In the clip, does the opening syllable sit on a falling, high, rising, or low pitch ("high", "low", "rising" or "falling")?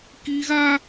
high